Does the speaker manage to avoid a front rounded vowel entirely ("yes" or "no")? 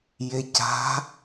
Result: yes